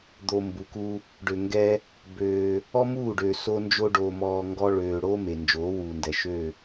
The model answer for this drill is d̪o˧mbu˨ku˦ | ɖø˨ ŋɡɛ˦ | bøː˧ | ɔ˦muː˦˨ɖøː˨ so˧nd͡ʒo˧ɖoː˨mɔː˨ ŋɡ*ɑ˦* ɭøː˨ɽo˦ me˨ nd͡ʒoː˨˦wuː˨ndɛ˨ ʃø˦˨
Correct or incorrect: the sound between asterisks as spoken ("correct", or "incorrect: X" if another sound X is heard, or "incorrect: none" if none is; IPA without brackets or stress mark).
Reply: incorrect: ɔ˦